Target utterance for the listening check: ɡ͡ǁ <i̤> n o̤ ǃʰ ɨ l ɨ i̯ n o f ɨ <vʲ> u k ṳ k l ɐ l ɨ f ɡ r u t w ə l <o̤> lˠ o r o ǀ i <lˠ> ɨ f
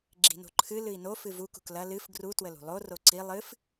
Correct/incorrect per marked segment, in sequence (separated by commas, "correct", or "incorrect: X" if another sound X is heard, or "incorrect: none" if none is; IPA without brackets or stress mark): correct, incorrect: v, incorrect: ṳ, correct